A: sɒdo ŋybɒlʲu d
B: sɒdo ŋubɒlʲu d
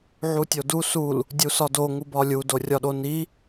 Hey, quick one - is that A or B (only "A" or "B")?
B